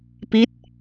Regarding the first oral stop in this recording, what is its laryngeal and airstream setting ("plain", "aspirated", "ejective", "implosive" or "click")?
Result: plain